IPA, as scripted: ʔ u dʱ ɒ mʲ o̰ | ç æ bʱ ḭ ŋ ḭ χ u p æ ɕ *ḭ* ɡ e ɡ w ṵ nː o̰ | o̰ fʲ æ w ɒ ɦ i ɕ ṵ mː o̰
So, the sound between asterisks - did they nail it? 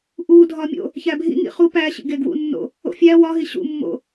yes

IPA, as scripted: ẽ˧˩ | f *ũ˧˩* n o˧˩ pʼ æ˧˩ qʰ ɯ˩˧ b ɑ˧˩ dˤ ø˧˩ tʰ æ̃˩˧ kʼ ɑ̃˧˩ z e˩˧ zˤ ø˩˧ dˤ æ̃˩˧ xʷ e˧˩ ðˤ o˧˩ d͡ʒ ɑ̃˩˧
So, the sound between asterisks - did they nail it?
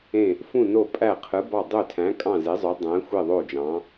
yes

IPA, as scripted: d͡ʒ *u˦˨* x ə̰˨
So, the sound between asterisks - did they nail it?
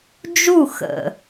yes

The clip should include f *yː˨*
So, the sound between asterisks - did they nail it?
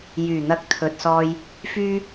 no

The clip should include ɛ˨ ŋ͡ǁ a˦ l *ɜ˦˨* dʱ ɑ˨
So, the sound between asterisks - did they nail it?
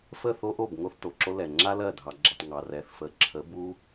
yes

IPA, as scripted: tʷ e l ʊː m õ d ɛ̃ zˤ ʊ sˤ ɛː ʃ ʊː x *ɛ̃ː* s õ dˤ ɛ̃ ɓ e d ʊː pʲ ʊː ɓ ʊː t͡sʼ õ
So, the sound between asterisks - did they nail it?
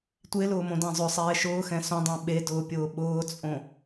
no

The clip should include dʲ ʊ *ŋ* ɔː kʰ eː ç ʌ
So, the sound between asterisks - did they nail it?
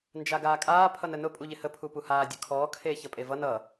no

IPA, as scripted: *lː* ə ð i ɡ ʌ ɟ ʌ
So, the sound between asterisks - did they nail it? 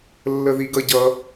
yes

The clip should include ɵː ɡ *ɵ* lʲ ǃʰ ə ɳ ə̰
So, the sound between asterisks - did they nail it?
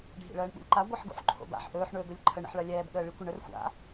yes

